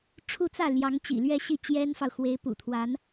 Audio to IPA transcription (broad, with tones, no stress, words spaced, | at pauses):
ʈ͡ʂʰu˥˧t͡sä˥˩ ljɑ˧˥ŋt͡ɕḭ˨˩lɥɛ˥˧ ɕi˥˩t͡ɕjɛ˥nfɑ˨ʊ̯ xwe˧˥ɪ̯pṵ˨˩t̪ʰwa˧˥n